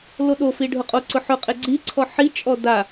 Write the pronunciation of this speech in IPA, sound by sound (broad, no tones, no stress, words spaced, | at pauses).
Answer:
loɗofi ɖʱʊqʼo ǀʊħʊqʼe ɡ͡ǀiǀʰɔ ħit͡ʃʼɔ da